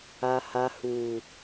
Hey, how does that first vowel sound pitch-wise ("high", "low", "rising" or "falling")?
low